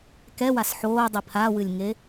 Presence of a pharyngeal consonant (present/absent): present